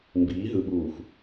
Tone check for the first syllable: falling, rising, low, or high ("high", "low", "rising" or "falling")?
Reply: rising